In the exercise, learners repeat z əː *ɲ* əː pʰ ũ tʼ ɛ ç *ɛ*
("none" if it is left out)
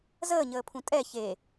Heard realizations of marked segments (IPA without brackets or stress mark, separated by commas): ɲ, e